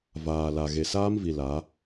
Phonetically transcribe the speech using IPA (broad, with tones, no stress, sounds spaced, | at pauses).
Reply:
v aː˨ l a˨ ɣ e˨ s aː˦ m v i˨ l a˨˦